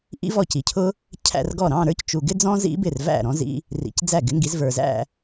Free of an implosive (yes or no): yes